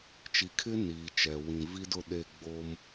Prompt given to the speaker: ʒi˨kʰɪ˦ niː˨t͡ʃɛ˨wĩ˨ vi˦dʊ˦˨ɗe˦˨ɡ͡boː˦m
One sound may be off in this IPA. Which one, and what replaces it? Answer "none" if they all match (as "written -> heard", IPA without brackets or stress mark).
ʒ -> t͡ʃ